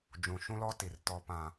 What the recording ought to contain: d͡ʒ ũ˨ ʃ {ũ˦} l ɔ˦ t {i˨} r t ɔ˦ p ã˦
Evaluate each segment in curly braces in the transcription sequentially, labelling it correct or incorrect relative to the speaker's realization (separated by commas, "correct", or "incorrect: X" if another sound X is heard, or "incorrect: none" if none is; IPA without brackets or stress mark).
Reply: correct, correct